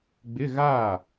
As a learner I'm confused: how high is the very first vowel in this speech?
high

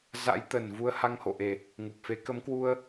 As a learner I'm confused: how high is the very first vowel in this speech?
low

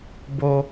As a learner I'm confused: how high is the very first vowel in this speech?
mid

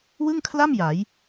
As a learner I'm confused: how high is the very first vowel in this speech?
high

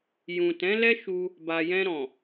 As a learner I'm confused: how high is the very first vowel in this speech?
high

